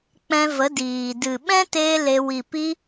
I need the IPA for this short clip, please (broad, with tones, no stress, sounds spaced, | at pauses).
k͡p ɛ̃˧ v ə˨˦ d iː˨ d ɨ˨ ɓ ɛ̃˦ t eː˧ l e˧ w i˨ p i˧